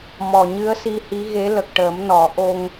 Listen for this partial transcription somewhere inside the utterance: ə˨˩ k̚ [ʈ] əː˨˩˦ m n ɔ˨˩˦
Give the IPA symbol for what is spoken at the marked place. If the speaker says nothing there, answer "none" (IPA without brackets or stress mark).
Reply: ʈ